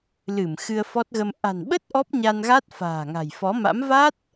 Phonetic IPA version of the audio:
l ɨ˧˩ m x ɨ˧ ə̯ f ɔ˦˥ t̚ ɣ ə˧ m ʔ a̤˨˩ n ɓ ə˦˥ t̚ ʔ ɔ˦˥ p̚ ɲ a˧ n ɣ a˦˥ t̚ f a̤ː˨˩ ŋ a̤˨˩ j f ɔ˨˦ m a̰˧˥ m v a˦˥ t̚

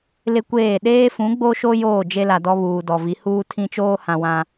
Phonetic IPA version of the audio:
l ɪ˦ kʷ eː˦˨ ɗ eː˦ f ũ˨˦ ɡ͡b o˦ ʃ o˦ j oː˦˨ d͡ʒ e˦ l a˨ d ɔ˦ β uː˨ d ɔ˨ v i˨˦ h uː˦ tʰ ĩ˦ t͡ʃ oː˦ h ã˨ w ã˨

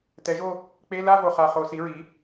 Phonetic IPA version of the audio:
t ɛ˩˥ ʒ o˥˧ | k͡p e˧˥˧ l a˥˧ v o˨˩ χ a˨˩ χ o˧˩˧ s i˩˥ ɹ i˩˥

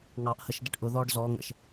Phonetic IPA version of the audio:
ŋ ɑ ʔ h ə ʃ d ə ʈ ʔ ʊ ð ɔː ɖ z ɔː ŋ ə̰ ʃ

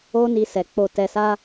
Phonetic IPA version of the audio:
o˦ n i˧ s ɛ˨ k͡p o˧ t ɛ˧ s a˦

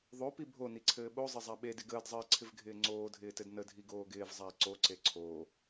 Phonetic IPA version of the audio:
ðˤ o p i bʱ o n i ǀʰ ɘː ɓ o zˤ ɪ zˤ a ɓ e d ɪ ɡ əː d zˤ ɘː ǀʰ ɪ v ɡʱ ɪː ŋ͡ǀ oː dʱ ɪː t ɘ d n ə dʱ i ɡ oː ɡ ɪː v zˤ a i̯ ǀ o ǀ e ǀʰ oː

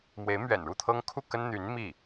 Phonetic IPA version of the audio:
m w e˧˥ ɪ̯ m ɥ ɛ̰˨˩ n ɻ u˥˩ t̪ʰ ɤ˥ ŋ kʰ u˥˩ k ə˥ n n̪ y˧˥ n m i˥˩

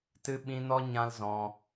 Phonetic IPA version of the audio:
t ɨ˧ ɓ ĩ˧ n ɔ˦ ɲ ã˦ l z ɔ̃˧

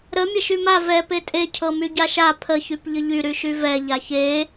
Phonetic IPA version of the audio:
ɾ ə mʲ ə ʃ y m a v ɛ p e tʼ e cʰ ɤ m y ɟ a ʃ a pʰ ə ç y p ʎ ə ʎ y ɾ y ʃ y v ɛ ʎ a ç e

